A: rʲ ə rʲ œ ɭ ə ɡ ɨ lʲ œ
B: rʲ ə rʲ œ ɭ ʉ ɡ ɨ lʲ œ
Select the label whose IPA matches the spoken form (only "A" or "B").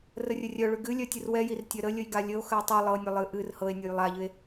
B